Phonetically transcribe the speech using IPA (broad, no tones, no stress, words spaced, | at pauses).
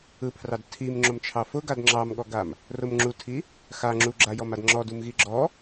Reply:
ɯpʰrɑd tʰimŋ͡ǁomt͡ʃʰɑ fʊɡad ŋ͡ǁɑmɠɔɡam | rʊm ŋ͡ǁutʰi | xa ŋ͡ǁuɡ͡ǁajɔmad ŋ͡ǁɔdumɣi ɡ͡ǁɔ